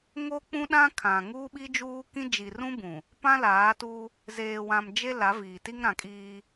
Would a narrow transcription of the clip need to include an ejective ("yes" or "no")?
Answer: yes